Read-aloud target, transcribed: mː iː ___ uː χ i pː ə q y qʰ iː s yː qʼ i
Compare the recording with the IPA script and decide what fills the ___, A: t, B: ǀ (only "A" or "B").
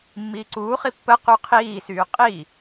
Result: B